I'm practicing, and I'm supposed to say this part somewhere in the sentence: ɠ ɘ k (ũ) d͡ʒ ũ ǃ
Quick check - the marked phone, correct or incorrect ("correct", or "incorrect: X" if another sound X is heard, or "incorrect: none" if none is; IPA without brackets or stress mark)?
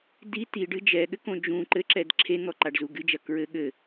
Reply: incorrect: õ